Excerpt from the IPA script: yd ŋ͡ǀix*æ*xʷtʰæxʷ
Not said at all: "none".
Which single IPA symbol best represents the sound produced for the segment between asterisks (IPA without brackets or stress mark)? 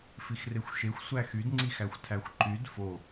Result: æ